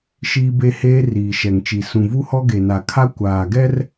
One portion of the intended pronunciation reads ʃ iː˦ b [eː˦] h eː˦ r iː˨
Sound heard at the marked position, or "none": e˦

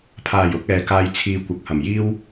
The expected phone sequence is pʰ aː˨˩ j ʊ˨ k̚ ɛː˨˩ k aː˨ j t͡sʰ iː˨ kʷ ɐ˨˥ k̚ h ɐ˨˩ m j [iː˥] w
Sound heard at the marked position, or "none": iː˥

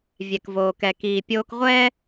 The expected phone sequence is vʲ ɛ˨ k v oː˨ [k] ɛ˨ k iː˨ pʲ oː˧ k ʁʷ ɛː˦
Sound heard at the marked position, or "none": k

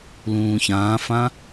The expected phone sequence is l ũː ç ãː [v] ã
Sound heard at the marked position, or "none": f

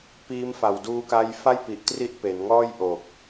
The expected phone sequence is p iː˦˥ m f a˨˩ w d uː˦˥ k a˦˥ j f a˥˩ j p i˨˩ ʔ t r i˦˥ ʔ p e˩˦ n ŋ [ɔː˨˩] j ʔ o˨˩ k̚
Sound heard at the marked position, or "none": ɔː˥˩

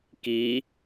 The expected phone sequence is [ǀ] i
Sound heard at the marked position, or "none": k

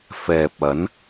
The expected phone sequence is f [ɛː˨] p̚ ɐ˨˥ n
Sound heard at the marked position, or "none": ɛː˨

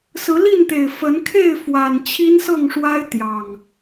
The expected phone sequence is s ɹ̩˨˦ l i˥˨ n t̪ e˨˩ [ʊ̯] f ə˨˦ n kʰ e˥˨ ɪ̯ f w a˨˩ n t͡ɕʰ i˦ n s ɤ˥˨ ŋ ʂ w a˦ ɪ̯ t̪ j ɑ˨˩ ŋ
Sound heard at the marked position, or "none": ɪ̯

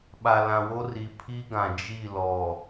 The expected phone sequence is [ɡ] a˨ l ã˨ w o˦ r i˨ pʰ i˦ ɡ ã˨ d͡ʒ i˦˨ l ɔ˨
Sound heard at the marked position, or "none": ɓ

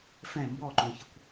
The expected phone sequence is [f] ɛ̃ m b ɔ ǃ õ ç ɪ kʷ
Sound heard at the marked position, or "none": f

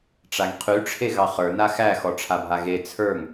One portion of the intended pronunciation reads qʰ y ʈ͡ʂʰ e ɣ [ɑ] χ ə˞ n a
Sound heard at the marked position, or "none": ɑ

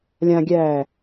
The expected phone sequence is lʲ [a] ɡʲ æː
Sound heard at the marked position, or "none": ã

